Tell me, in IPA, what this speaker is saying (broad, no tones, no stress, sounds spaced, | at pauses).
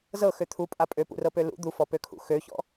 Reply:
z ɤ x ø t̪ʰ u pʼ a pʼ ø p ṵ r ɤ p ø l ṵ d̪ u f ɔ p ø kʰ ṵ x ø ç ɔ̰